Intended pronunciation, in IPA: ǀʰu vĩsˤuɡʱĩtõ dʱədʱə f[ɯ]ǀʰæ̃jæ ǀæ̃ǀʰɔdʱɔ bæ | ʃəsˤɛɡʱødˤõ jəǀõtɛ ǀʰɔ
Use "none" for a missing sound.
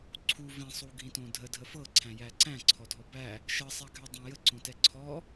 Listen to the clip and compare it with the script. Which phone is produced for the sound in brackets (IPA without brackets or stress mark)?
ɤ